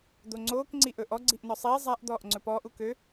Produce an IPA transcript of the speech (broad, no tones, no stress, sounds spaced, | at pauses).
d̪ o ŋ͡ǀ oː k ŋ͡ǀ i ʔ ɵ ʔ ɔ ɡ͡ǀ i ʔ n ɔ sˤ iː zˤ a ʔ d̪ ɔː ʔ ŋ͡ǀ ɵ p ɔː ʔ u k ø